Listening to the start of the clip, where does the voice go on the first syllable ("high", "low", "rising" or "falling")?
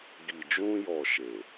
low